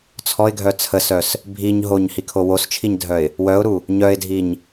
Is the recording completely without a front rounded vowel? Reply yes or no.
no